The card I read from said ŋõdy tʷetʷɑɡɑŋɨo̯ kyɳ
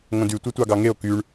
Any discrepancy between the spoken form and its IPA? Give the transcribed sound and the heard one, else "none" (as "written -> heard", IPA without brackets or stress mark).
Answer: ɨ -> e